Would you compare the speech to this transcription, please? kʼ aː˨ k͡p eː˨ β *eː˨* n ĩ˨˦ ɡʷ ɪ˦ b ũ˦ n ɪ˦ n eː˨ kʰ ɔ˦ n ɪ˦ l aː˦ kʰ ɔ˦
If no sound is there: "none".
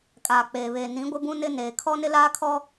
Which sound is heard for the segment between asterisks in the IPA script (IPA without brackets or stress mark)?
eː˨